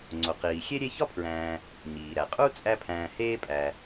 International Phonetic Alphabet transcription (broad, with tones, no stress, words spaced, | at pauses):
ŋ͡ǀo˩qiː˩ xʲe˥ ɾʲe˦çɒ˥pʰɹæ̃ː˨ | ɲiː˩ɾæ˩qʼu˥ t͡sʼæ˦pʰæ̃ː˨ heː˦pʼæ˩